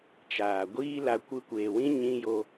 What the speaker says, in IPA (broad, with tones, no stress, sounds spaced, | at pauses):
t͡ʃ aː˨ ɡʷ iː˦ l a˧ kʷ ɨ˧ kʷ eː˨ w ĩ˦ ɲ ĩ˧ j o˧